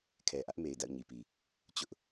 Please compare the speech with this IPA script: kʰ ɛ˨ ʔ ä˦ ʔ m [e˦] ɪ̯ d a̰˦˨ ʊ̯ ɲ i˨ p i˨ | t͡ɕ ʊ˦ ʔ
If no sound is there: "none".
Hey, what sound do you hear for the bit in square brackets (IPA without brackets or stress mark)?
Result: e˨